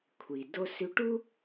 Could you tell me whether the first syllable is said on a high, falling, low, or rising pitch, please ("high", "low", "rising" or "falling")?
low